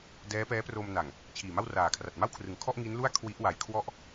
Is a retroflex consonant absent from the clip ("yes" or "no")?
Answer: yes